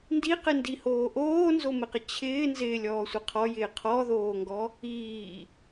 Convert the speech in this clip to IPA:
n d i q ɪ n d i h oː ʔ oː n z o m ɪ q ɪ t͡ɕʰ ɪː n z ɪː lʲ ɔː sʷ ɪ qʰ ɔ j ɪː qʰ ɔ ð oː ŋ ɡ ɔ | iː

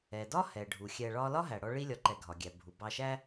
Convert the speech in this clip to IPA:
ɛ˩ d ɒ˥ h ɛ˩ ɖʱ u˩ xʲ ɛ˨ ɭ ɒ˦ l ɒ˥ ɦ æ˩ ɽ ɔ˦ ɭ i˦ lʲ ɒ˩ ǃ ɛ˩ ɡʱ ɒ˩ ɡʲ æ˩ bʱ u˩ b ɑ˨ ʃ æ˦

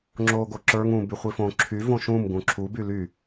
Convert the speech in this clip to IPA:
ŋ͡ǁ oː ɡ o ǁ ə˞ ŋ ũ b y χʷ i f õ ǁʰ y v õ ʃ ũ m ɡ ũ ǁʰ u b y l y

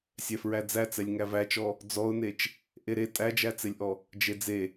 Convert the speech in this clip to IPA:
sʲ ɛ f ɹ æ d͡z æ t͡s ɛ lʲ ŋ æ v æ t͡ʃ ɔ | d͡z ɔ ʊ̯ n e t͡ʃ | ʔ e ɾ e tʼ æ d͡ʒ æ t͡s e lʲ ʔ ɔ | d͡ʒ e d͡z e

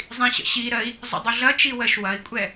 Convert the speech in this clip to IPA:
zˤ ĩ ɕ ə̰ ɕ i ɾ ɜ i̯ | zˤ ə̰ dˤ u ɮ ɐ t͡ʃ i w ɜ ʃ w ɐ i̯ kʷʼ ɛ

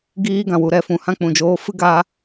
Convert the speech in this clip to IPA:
ɡ iː˦ ɡ ã˨ w u˨ ɾ ɛ˨ f ũ˨ h ã˦ k͡p ũ˨ d͡ʒ oː˧ f ɨ˦ ɡ aː˧

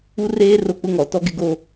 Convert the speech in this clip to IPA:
u˦ r eː˦ r o˦ k͡p ʊ˦ ŋ ɔ˨ t ɔ˦ ɡ ɪ˦ ɡ o˦

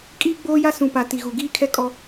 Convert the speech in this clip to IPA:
kʼ iː˦ ɡ͡b oː˦ j a˦ s ũ˨ p a˨ t i˨ ɣ u˨ ɡ iː˦ kʰ ɛ˦ kʼ ɔ˦

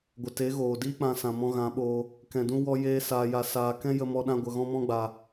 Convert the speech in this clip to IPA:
ɡʷ ə˨ t e˨˦ ɣ oː˨ d iː˦ k͡p ã˧ s ã˨ m ɔ̃˧ ɣ ã˨˦ ɓ oː˧ | k ɛ̃˨ d ũ˧ w ɔ˧ j eː˦ s aː˧ j a˧ s aː˧ k ɛ̃˦ j ə˦ m ɔ˦ ɗ ã˦ ɡʷ ə˧ ɣ ɔ̃˦ m ɔ̃˦ ɡ͡b a˧

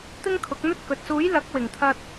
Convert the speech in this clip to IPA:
t̪ ɪ˥ ŋ kʰ ʊ˨˥ k̚ n̪ ɵ˥ t̚ k ɵ˨ t̚ s uː˨˥ j l ɐ˨˥ k̚ w ɪ˨˩ ŋ t̪ʰ ɐ˧ t̚

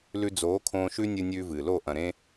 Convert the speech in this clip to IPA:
l ʉ˧ d͡z oː˨˦ kʰ õː˧ ʃ ʉ˦ nʲ ɨ˧ nʲ ʉː˧ v ɨː˨ l o˦˨ ʔ ɐ̃˨ ɾ ẽ˦

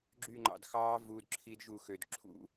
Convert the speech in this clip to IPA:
ɡ͡ǁ y˥˧ ŋ͡ǃ ɑ̰˧ d x ɑː˦˥ v u˧˥˧ d ǁʰ i˦˥ d ʒ u˥˩ x ø˧ d ǁʰ ṵ˦˥

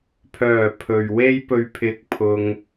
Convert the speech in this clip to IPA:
pʰ œː˨˩ pʰ ɵ˨ ɥ w e˥ j p ɵ˧ ɥ pʰ ɪ˧ k̚ pʰ ʊ˧ ŋ

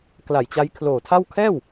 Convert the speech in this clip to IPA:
k l a˨˩ j t͡ɕ a˦˥ j kʰ l oː˨˩ tʰ a˥˩ w kʰ ɛː˥˩ w

